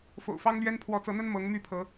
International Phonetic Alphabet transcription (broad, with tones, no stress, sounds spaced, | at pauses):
f o̰˨˩ ʊ̯ f ɑ˦ ŋ l ɥ ɛ˦ n pʰ w ɔ˨˦ t͡s ɤ˨˦ n̪ ə˦ n m ɤ˨˦ ŋ m y˥˨ pʰ ɤ˨˦